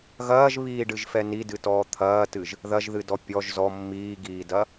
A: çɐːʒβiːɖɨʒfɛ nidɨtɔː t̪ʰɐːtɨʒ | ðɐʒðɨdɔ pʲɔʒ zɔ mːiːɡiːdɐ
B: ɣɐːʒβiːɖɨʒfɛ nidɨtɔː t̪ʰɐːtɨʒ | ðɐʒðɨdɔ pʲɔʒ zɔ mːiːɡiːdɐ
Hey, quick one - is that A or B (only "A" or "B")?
B